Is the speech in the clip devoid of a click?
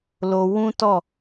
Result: yes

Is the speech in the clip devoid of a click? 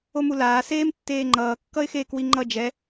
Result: no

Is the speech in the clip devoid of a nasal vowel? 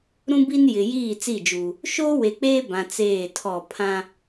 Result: no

